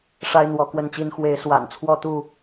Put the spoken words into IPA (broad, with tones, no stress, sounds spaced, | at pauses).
ʂ a˦ ɪ̯ n̪ w ɔ˨˦ k w ə˥˨ n t͡ɕ i˦ n x w e˨˦ ɪ̯ s w a̰˨˩ n t͡sʰ w ɔ˥˨ t̪ u˥˨